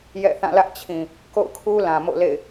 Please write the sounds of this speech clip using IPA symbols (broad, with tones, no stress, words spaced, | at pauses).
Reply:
jɛ̰˦˨θã˦˨lä˦ʔt͡ɕʰĩ˨ | ko̰˦˨ʊ̯kʰu˦lã˨ mo̰˦˨lḛ˦˨ɪ̯